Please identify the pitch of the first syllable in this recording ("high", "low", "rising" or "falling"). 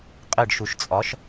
falling